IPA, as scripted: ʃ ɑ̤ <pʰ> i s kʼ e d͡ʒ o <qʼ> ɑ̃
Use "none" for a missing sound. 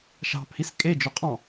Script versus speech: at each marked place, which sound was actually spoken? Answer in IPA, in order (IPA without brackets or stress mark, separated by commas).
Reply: pʰ, qʼ